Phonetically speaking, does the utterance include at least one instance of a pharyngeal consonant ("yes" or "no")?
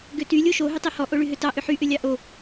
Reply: yes